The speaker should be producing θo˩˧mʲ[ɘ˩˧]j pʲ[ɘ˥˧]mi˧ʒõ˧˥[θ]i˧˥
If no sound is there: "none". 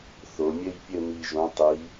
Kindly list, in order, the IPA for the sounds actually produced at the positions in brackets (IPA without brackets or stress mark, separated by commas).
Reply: ɘ˥˧, ɘ˥˧, tˤ